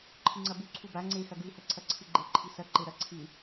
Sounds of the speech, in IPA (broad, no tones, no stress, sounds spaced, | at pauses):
ǃʰ ɨ ŋ͡ǀ ɐ b u ǀʰ u b a ŋ͡ǀ e x ɐ ɡ ʉ h ɐ ǀʰ ɐ ǀʰ ɨ ɡ͡ǃ e ǃʰ i s ɐ ǃ e ɾ ɐ ǀʰ ɨ